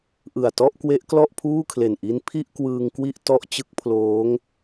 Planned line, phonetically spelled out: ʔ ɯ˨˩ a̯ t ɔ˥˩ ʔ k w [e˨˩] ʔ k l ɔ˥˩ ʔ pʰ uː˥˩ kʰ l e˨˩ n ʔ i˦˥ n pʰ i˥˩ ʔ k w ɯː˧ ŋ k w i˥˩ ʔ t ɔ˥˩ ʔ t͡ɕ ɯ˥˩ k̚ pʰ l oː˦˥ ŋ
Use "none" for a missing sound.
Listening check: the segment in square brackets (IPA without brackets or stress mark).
e˦˥